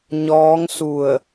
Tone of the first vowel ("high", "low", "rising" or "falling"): rising